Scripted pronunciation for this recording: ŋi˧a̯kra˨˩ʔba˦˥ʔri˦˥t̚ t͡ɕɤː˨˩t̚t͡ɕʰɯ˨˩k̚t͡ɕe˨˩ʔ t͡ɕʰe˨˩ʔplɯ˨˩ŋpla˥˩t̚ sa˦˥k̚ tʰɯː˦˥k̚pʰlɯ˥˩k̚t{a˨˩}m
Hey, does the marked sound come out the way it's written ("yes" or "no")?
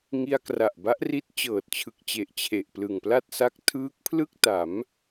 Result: no